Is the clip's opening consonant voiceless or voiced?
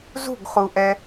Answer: voiced